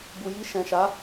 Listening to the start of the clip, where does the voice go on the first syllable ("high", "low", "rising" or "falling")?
low